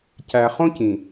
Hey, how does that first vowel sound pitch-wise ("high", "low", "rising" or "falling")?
low